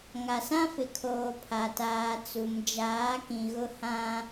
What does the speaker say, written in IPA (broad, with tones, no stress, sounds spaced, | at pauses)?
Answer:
ŋ a˨ s ã˦ f ɪ˨ kʰ oː˨ pʰ a˨ t aː˨ t͡s u˨ m d͡ʒ aː˨˦ k ĩ˨ ɣ ʊ˦ h ã˦